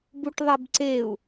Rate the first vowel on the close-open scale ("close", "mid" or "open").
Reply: close